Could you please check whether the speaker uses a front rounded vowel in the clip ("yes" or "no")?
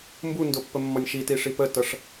no